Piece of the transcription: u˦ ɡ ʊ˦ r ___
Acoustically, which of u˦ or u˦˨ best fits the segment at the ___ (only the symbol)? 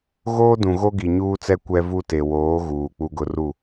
u˦˨